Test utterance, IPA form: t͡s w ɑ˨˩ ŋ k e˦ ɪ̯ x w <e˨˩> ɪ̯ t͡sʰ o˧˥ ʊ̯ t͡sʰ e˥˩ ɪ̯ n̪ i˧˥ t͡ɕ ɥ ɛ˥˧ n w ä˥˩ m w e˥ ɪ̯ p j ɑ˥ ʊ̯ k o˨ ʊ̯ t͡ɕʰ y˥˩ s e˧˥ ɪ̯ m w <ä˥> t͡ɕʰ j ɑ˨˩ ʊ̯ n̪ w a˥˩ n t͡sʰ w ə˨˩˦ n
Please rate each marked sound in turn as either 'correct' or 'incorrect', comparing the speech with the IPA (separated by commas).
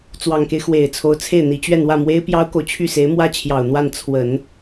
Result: correct, correct